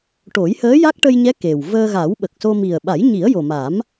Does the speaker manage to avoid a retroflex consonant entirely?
no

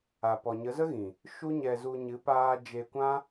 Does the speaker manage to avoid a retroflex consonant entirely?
yes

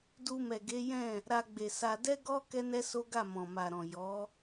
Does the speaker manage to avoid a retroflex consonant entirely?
yes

